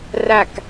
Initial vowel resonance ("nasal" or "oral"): oral